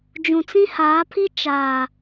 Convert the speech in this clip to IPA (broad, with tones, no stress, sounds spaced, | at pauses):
d͡ʒ ũ˨ t͡s ĩ˦ h aː˨˦ pʰ i˦ t͡ʃ aː˨